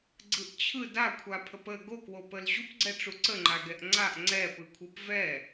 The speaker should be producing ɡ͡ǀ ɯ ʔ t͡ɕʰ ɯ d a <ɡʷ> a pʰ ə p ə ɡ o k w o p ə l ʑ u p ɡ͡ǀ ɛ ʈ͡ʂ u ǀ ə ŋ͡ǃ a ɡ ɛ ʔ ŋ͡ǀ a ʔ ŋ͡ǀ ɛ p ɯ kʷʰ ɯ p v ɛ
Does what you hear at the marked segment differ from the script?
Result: yes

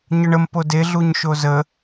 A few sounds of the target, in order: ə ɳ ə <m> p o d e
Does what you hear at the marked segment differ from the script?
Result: no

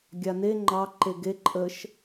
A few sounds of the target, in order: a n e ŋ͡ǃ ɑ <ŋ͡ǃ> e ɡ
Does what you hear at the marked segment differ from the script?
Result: yes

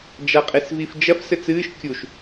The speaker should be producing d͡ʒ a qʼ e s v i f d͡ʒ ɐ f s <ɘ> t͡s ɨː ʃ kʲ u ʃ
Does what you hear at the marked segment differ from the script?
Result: no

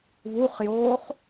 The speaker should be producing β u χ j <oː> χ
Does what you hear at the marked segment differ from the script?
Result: no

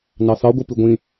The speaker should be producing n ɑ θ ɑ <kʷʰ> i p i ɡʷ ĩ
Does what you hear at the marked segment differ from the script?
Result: yes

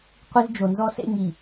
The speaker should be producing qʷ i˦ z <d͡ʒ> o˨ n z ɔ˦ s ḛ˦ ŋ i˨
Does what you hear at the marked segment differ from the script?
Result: no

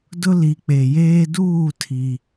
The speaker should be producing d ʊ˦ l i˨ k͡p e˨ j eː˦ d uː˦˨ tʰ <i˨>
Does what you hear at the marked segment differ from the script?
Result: no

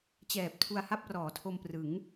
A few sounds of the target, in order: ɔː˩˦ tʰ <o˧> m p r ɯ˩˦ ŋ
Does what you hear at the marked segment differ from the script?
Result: no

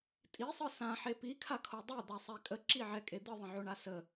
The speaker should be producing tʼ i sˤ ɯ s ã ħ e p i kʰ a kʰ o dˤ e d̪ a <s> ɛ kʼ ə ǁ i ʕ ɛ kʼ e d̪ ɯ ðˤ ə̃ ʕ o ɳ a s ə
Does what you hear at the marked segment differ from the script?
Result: yes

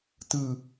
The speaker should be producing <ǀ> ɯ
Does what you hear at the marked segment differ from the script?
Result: yes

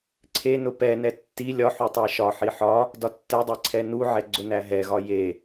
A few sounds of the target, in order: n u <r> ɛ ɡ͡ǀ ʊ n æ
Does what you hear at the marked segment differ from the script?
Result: yes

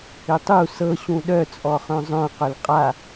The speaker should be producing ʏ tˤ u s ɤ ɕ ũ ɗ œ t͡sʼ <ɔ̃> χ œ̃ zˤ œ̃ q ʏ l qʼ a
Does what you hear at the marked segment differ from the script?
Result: yes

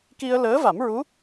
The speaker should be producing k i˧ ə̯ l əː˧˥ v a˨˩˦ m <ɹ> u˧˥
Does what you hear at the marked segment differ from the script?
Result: no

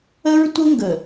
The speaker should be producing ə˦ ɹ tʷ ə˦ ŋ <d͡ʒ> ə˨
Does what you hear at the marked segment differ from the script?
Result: yes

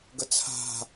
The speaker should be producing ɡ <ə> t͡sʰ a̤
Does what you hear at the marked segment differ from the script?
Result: no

